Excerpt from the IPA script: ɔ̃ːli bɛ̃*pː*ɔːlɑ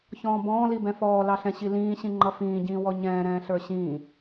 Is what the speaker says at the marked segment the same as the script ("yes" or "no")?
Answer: no